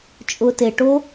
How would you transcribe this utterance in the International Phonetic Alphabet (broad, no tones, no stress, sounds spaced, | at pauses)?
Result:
t͡ʃʼ ʊ t e ʈ o